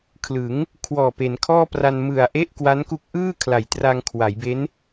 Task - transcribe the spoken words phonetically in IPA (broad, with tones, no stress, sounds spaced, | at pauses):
kʰ l ɯ˩˦ ŋ | kʰ w ɔː˨˩ p e˩˦ n kʰ ɔː˥˩ p r a˧ n m ɯ˨˩ a̯ ʔ e˥˩ ʔ k w a˦˥ n k u˦˥ k̚ ʔ ɯː˥˩ kʰ l a˨˩ j t r a˧ ŋ kʰ w a˩˦ j b e˦˥ n